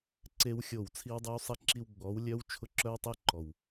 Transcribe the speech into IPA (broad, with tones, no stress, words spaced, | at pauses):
ǀe˦wxʲo˦˨w t͡sʰi˦wdˤɨ˦wsˤi˦ǁi˦w ɡ͡bɔ˨˦wlʲœ˦w t͡ʃʰʊ˦ǁœ˦wtˤɘ˦ ǃɔ˨w